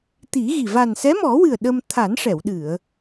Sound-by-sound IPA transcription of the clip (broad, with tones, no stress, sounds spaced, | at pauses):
t̪ i˨˩˦ ɣ i˨˩ v a˨˩ n s ɛ˧˥ m ɔ˨˩˦ w ɨ˨˩ ə̯ ɗ ə˧ m t̪ʰ a˨˩˦ n ʂ ɛ˨˩˨ w ɗ ɨ˨˩˨ ə̯